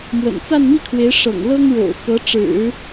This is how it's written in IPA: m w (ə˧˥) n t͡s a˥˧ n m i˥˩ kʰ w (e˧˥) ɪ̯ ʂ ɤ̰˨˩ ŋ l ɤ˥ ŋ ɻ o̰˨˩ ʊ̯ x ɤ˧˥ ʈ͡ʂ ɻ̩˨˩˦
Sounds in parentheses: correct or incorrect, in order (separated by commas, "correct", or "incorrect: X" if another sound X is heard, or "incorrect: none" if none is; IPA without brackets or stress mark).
incorrect: ə̰˨˩, correct